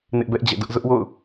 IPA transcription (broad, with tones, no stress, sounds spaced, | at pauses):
n ɪ˦ ʔ b ɛ˦ ʔ d͡ʑ ɛ̰˦˨ d ʊ˦ ʔ z ʊ˦ ʔ w o̰˦˨ ʊ̯